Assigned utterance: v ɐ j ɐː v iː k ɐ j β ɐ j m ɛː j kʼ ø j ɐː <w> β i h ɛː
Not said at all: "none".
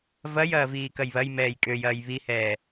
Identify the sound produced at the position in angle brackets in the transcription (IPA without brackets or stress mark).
j